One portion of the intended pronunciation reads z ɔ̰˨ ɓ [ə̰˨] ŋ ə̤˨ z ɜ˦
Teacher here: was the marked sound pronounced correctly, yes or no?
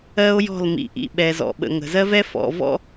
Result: yes